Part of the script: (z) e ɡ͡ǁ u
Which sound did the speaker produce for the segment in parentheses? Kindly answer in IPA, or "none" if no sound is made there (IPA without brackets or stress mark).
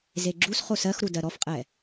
z